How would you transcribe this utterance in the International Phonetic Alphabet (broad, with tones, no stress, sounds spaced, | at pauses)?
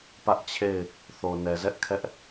p ä˦ ʔ t͡ɕʰ e˦˨ ɪ̯ | θ o˨ n ɛ˨ z ɛ˦ ʔ kʰ ɛ˦ ʔ